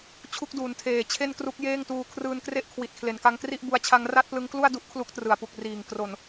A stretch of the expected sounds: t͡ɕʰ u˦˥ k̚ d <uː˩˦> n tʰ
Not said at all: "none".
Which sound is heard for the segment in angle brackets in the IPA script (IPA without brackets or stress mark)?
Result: uː˩˦